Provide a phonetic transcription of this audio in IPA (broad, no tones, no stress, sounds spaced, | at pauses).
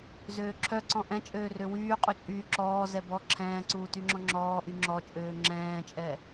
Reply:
z øː ǁʰ œ ǀ ɔ̃ ʔ ɛ̃ t͡ʃʼ øː r ø w yː qʼ u t͡ʃʼ yː ǁ ɔː z ɛ b ɔ ǁʰ ɛ̃ː ǀ uː t y ŋ͡ǁ ɔ̃ ŋ͡ǁ ɔː ʔ y ŋ͡ǁ ɔ t͡ʃʼ øː ŋ͡ǁ ɛ̃ː t͡ʃʼ ɛ